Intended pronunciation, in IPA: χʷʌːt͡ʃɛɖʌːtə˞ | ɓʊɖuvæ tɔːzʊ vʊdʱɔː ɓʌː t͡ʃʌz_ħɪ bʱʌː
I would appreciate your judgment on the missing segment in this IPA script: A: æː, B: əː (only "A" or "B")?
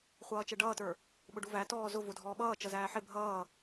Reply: A